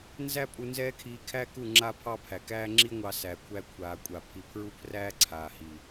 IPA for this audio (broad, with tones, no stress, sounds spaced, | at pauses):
n z æ˦ pʼ u˧ n z ɛː˦ kʰ iː˧ kʰ æ˦ k u˦˨ ŋ͡ǁ a˦ pʰ ɑ˦ pʰ æ˨ k æː˦ ŋ͡ǁ i˦ ŋʷ ɑ˧ s æː˨ kʷʰ æ˧ kʷʰ aː˨ kʷʼ a˨ pʰ i˨ pʰ ɹ u˦ pʰ r æː˦ ǀʰ aː˨ h i˨